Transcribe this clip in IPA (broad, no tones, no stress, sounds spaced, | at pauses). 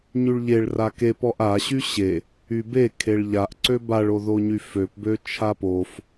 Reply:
ɲ y ɭ ʎ e ɭ r a k e p ɔ ʔ a ɕ y ɕ e | y b e kʰ e ɭ ʎ a ʔ ǀ ø b a ɭ o ð o ɲ y f ø p b ø t͡ʃʰ a p o f